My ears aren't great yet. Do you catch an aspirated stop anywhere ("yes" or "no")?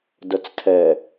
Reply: yes